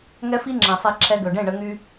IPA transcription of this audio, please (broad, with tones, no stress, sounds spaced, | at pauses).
ŋ ɛ˦ f i˦ ŋ͡ǁ ɛ̃˨ sˤ ɛ˧ ǁʰ ɛ˧ ɡ ø˨ ɖ ẽ˦˨ ɳ ə˧ ŋ y˧